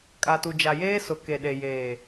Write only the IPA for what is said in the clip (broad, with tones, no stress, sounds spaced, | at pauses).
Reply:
kʼ a˨ t u˨ d͡ʒ a˨ j eː˦ s ʊ˨ k e˨ ɗ e˨ j eː˨